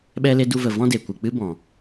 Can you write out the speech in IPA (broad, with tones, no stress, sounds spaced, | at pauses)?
ɓ ɛ˦ l e˦ d u˧ v ə˨ v ɔ̃˦ d e˨ kʷ ɨ˨ k͡p ɨ˦ b ɔ̃˨